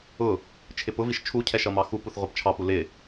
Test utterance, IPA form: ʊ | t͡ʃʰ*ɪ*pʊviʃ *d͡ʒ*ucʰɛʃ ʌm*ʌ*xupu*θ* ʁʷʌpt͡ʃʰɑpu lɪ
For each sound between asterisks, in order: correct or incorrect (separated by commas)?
correct, incorrect, incorrect, correct